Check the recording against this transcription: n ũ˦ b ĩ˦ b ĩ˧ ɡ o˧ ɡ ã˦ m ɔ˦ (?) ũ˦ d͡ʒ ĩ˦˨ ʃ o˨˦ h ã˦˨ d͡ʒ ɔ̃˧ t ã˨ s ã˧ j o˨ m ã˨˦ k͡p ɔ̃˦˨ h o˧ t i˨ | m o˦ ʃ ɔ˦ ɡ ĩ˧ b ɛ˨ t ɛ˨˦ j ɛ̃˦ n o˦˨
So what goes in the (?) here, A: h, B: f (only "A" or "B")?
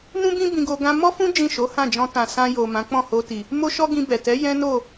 B